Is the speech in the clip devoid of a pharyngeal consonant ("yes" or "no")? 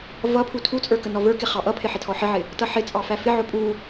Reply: no